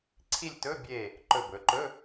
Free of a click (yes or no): no